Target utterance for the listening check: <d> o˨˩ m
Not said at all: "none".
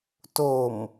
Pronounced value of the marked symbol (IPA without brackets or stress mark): t